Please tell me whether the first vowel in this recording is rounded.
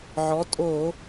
yes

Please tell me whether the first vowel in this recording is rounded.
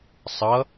no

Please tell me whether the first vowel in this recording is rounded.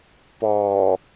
yes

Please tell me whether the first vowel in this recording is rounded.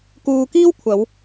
yes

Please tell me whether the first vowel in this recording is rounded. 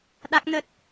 no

